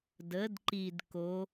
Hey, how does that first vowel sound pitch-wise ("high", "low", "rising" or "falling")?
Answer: rising